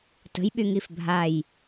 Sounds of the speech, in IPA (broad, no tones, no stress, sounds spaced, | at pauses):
t ə̤ j ɓ y ŋ i f bʱ a j